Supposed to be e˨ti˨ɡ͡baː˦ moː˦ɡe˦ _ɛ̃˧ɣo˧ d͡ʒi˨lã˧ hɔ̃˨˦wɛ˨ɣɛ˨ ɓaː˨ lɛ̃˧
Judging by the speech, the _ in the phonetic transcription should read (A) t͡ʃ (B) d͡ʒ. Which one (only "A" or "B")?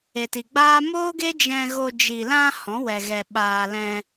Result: B